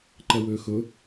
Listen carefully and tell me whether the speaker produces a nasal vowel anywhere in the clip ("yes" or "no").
no